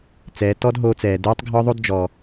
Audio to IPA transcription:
t͡s ɛː˩˧ t ɔ˥ d ɦ oː˧ t͡s ɛː˩ d uː˧˥ tˤ ɡʱ ɒ˥ ðˤ o˥ d d͡ʒ ɔ˩

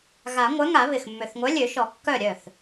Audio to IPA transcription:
ɣ a˨˩˦ ŋʷ œ˨˥ ŋ a˨˩˦ β ɪ˨˩ x mː ø˨˩ θ ŋʷ œ˨˥ lʲ ø˨˩˦ ʃ ɔ˨˩˦ kː œ˥˩ ɾʲ œ˥˩ θ

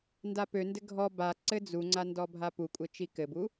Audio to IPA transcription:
n d a p ø n d ɘ ɡʱ ɔ b a ǀ ɘ d͡z u ŋ͡ǀ a n d ɔ bʱ a p u kʷʼ ɘ t͡ʃ i k ɘ b u

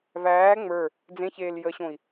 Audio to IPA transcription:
v æː ŋ͡m ə˞ | d͡z ẽ ç eː l j ə ɕ õ i̯

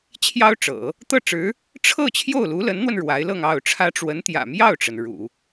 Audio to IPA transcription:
t͡ɕʰ j ɑ˥ ʊ̯ ʈ͡ʂ ɤ̰˨˩˦ | t̪ ɤ˥˩ ʈ͡ʂ ɻ̩˧˥ | ʈ͡ʂʰ ɤ˥˧ t͡ɕʰ j o˥˩ ʊ̯ l u˧˥ l ə˧˥ n n̪ w ə˧ n ɻ w a˧˥ ɪ̯ l ɤ˥˧ ŋ ɑ˥˩ ʊ̯ ʈ͡ʂʰ ä˥ ʈ͡ʂ w ə˧˥ n t̪ j ä̰˨˩ m j ɑ˥˩ ʊ̯ ʈ͡ʂ ə˩ n ɻ ṵ˨˩˦

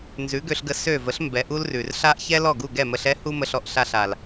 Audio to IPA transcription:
n z ʉ˩˥ ɡ ø˧ ɬ ɡ ə˧ s ø˥˩ v ə˥ ɬ m b ɛ˩˥ ʔ u˥ l r ʉ˩ r ɬ a˥ ʔ ç ɛ˥ l ɔ˥˩ ɡ u˥˩ ɡ ɛ˥˩ m ə˧ ɬ ɛ˥ h u˥ m ə˧ ɬ ɔ˥˩ ʔ ɬ a˥˩ ɬ a˩ l

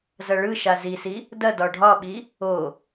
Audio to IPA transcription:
z ɐ ɭ ɯ ʃ a z i s i | d ɐ d ɒ ɖʱ ɒ ɓ i | o

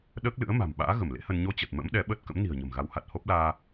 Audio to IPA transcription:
ɗ əː˦˥ k̚ l ɨ̰˧˥ ə̯ m a̤˨˩ m ɓ a̰ː˧˥ ɣ ə˧˩ m l ḛ˧˥ h ə˧ n ɲ o˧ t͡ɕ ə˨˩ t̚ m ə̰˧˥ m ɗ ɛ˨˦ ɓ əː˦˥ t̚ k ə̰˧˥ m n i̤˨˩ ə̯ ɲ ə̤˨˩ m ɣ a˨˦ w h a˨˩ t̚ h o˦˥ p̚ l aː˧

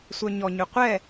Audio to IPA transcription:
sʷ œ ɲ ɔ ɲ ʏ qʷ ɛ

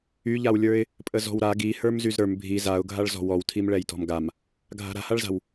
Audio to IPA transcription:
y ʎ a w lʲ ə˞ ɪ̯ | pʼ ə z ɔ̤ w ɾ a ɡ i h ə˞ m z y z ɾ ə˞ m bʱ i z a ʊ̯ ɡʱ a ɭ z ɔ̤ w ɔ w tʰ i m ɭ ɛ j t ɔ̤ m ɡ a m | ɡʱ a̤ ɾ a̤ h a ɭ z a̤ w

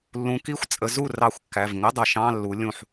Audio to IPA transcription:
lː ũ˨˦ k i˧˥˧ xʷ t͡sʼ ə˨˦ z u˥˩ r ɑ˧˩˧ xʷ kː æ˩˧˩ v ŋ ə˧˥˧ dˤ ʌ˧˩˧ ʃ ɑ̃˧˥˧ lː u˨˦ lʲ ũ˧˩ ħ

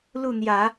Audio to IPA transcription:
l u˥˩ n̪ j ä˨˩˦

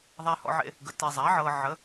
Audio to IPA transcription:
ðˤ a˨ h ɔ̰˨ ʕ ḛ˨ | ɡ ə˩˥ t e˨ zˤ a˩˥ ʕ ɤ˨ ʕ ə˩˥

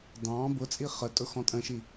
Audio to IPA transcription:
d ɑ̃ b ʊ t͡sʼ i χ ə tʼ ʊ x ɔ̃ tʼ ə̃ ʃ i

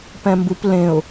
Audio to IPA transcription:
p ɛ̃ m b u p l ẽ ʊ̯

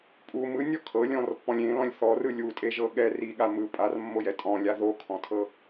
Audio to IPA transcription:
pʼ u m ɯ nʲ ɔ kʰ ɤ lʲ ɔ̃ r pː ɔ̃ lʲ ẽ l ɔ̃ lʲ θ ɔ r ɯ lʲ u tʼ e ʒ ɤ ɠ ɛ r i ɠ a m ɯ pʼ a r mː o j ɛ tʼ ɔ̃ lʲ a ð o kʰ ɔ̃ tʰ ɤ

